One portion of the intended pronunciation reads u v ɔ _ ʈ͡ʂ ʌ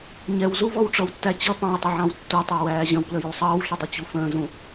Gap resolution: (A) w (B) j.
A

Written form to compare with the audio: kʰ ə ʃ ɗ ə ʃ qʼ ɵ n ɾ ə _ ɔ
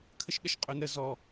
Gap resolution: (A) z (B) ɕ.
A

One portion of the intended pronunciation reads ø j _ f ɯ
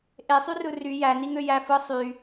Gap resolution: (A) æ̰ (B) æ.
B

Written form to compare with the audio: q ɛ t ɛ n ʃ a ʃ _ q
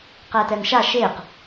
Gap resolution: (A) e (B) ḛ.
A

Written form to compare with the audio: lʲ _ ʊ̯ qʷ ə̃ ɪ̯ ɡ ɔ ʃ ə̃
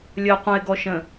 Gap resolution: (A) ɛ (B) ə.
B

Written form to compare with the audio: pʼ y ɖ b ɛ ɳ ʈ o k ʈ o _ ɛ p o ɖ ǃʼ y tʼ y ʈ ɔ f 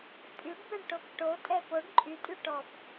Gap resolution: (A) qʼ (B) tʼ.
B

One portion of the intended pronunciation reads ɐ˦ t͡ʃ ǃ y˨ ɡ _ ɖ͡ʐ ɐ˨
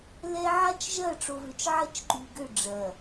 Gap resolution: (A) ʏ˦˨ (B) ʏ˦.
A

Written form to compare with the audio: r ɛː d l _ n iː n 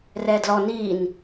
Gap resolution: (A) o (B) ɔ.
B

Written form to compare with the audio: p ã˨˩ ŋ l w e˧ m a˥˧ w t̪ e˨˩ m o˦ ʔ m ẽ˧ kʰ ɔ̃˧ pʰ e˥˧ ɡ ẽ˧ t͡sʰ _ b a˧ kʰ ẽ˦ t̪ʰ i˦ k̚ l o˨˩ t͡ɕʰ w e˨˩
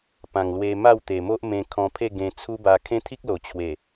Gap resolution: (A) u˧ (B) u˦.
B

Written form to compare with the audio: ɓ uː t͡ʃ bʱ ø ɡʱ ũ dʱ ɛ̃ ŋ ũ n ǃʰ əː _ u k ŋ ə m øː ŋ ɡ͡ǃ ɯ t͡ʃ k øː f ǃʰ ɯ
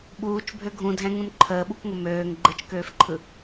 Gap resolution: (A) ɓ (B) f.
A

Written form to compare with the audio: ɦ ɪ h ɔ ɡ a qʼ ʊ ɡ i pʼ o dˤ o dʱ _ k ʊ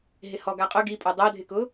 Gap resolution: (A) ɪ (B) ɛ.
A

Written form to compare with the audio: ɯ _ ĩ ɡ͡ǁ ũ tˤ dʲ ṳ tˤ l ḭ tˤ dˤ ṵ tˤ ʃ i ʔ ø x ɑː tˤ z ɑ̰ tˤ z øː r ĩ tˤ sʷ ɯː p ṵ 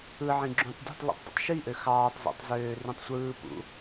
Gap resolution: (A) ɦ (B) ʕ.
B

